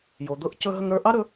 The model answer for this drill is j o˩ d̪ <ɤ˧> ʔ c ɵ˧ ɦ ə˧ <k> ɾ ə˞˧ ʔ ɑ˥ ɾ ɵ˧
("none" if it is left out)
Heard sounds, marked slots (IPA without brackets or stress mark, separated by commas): ɤ˧, ŋ